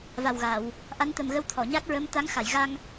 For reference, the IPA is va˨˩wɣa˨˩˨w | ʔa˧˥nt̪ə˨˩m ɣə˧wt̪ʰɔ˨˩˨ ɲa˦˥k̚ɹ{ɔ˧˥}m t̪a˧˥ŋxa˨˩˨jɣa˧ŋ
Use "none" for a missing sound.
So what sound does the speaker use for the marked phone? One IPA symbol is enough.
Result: ə˧˥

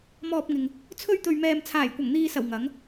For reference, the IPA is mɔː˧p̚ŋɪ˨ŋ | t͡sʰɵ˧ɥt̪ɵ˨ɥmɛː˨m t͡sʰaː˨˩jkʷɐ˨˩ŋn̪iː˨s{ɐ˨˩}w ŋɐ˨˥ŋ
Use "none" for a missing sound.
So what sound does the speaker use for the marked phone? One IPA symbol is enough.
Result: ɐ˨˩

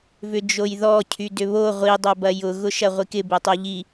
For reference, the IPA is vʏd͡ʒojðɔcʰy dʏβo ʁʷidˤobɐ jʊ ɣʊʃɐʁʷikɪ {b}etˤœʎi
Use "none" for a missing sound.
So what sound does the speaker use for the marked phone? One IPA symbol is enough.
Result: b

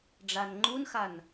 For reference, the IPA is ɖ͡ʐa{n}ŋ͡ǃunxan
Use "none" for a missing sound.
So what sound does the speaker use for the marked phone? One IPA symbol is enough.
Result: n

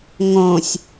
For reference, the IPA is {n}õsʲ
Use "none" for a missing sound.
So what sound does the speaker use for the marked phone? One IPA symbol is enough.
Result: ŋ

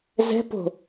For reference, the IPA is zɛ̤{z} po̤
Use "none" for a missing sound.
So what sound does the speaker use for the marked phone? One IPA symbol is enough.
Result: none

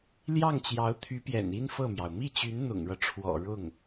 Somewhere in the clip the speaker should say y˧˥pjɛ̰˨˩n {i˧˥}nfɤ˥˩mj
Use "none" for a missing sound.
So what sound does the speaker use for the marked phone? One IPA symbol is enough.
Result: i˥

